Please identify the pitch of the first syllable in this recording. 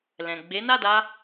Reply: low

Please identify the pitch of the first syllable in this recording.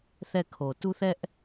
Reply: falling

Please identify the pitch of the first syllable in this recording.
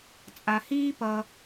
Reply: low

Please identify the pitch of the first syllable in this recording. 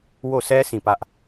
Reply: falling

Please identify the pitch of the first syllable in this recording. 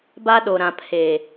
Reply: high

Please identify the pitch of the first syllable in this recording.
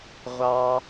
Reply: high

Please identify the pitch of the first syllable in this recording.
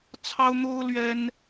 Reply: high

